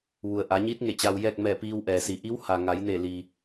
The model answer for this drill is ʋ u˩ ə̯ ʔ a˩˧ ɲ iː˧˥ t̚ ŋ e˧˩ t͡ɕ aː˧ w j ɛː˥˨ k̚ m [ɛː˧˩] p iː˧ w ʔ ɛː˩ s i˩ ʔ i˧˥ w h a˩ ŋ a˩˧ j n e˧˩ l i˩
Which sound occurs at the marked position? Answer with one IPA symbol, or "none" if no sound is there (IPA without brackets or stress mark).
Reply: ɛː˧˩